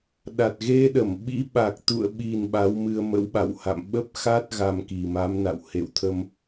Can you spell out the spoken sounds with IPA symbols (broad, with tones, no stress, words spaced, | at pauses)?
ɗa˨˩t̚ɣe˧ɗə˧˩m ɓḭ˧˥ ɓa˨˩k̚t̪ṵ˧˨ə̯ɓi˨˩n ɓa˨˦wmɨ˧ə̯mə̰˧˥wɓa̰˧˨w ha̰˧˨m ɓə˦˥p̚ xa˦˥t̚ ɣa˧mki˨˩ma˨˦mna̰˧˨w hḛ˧˨wt̪ʰə˧m